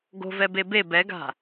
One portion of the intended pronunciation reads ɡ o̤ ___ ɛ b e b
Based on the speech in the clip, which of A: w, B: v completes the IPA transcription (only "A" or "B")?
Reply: B